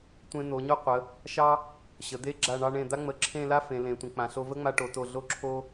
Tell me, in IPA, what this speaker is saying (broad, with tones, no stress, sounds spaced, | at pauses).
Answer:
tʷ ẽ˧ n̪ o˩˧ ɲ o˥ qʷ ə˩˧ | ʃ ɑ˥ | ɕ ə˩˧ d̪ e˥ ɡ͡ǁ a˧˩ ɳ ɑ˧ ɳ ẽ˧˩ d̪ a˥ ŋ͡m ə˧˩ ǁʰ ẽ˥˧ l a˥ f ẽ˩˧ l ẽ˩˧ tʷ ə̃˩˧ k͡p ã˩˧ ɬ o˧ v ə˥ ŋ͡m a˧ ʈ o˩˧ t o˧˩ ɮ o˥˧ ǁʰ o˥